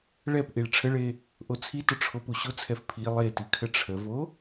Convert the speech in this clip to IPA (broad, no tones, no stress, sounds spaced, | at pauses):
ɭ ɛ p ʔ i ɭ ʈ͡ʂʰ ə ɭ e | ʔ o t͡sʰ i t ʊ ʈ͡ʂʰ o p u ɕ ʊ t͡sʰ ɛ f pʰ i lˠ e t i kʰ ə ʈ͡ʂʰ ə v o